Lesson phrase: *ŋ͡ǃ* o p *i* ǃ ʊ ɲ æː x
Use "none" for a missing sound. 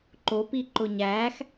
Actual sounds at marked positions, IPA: ǃ, i

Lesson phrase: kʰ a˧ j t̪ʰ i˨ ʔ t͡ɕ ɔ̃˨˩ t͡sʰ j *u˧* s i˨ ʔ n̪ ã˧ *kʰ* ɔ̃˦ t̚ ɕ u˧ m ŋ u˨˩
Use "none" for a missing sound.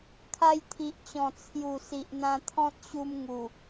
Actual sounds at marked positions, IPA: u˨˩, t̪ʰ

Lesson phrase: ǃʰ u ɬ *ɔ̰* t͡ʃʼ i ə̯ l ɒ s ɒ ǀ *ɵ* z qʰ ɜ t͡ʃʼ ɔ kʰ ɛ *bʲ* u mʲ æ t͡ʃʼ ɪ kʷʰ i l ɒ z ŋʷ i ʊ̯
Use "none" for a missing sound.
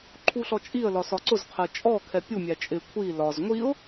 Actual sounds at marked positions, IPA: ɔ, ʊ, pʲ

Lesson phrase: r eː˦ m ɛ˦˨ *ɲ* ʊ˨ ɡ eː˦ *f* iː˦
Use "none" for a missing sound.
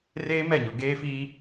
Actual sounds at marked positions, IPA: ɲ, f

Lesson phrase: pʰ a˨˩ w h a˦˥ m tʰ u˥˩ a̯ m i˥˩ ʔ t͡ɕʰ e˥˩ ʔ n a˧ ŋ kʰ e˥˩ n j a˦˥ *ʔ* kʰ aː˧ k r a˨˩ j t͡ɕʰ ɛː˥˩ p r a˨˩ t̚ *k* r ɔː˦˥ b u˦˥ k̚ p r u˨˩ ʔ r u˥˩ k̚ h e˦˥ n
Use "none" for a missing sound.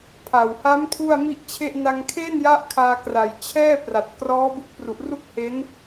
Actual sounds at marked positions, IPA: ʔ, k

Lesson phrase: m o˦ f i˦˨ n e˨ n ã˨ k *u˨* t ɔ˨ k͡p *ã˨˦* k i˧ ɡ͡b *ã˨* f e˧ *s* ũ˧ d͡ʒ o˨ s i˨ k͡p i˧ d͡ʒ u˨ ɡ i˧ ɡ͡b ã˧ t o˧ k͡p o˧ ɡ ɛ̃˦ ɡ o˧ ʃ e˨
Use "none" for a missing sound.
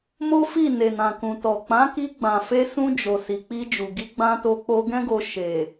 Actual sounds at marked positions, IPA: ũ˨, ã˨˦, ã˨, s

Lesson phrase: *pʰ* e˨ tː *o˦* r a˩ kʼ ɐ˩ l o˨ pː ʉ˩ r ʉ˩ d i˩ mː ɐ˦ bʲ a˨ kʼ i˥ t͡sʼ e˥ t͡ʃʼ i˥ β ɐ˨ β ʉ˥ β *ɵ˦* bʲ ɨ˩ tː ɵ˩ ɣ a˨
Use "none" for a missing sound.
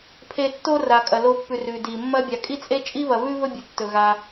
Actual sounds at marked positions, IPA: pʰ, o˦, ɵ˦

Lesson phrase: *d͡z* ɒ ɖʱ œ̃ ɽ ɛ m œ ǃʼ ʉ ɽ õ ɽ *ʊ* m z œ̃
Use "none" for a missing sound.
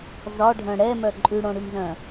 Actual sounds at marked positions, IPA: z, ʉ

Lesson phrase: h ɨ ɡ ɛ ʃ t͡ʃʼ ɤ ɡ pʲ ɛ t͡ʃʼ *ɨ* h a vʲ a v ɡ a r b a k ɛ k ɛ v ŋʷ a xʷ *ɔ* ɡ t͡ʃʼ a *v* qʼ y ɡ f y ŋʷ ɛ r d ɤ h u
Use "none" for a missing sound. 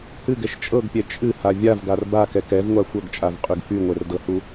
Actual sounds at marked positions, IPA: ɨ, ɤ, v

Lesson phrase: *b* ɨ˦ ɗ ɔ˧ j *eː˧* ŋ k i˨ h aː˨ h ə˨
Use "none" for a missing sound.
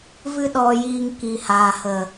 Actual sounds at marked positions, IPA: v, iː˧

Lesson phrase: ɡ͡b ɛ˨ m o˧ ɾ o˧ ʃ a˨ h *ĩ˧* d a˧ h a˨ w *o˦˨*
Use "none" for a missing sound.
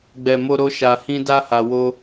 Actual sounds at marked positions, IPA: ĩ˧, o˧

